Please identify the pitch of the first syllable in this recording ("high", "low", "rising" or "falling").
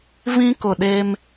high